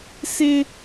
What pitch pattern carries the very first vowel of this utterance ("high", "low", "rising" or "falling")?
high